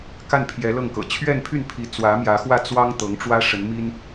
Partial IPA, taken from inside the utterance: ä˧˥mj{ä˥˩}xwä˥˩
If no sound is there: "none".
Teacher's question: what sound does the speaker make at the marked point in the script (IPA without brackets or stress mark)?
ä˧˥